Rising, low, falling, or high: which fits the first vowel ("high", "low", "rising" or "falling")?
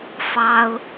high